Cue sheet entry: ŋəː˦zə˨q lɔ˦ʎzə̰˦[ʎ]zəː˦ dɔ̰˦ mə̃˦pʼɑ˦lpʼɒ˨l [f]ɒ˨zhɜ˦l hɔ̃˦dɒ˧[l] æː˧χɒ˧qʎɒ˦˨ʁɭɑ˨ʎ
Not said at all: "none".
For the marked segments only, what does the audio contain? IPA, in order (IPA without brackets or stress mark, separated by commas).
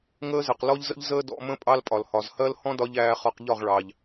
ʎ, h, ʎ